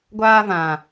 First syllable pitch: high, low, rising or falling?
high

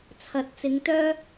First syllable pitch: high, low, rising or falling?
rising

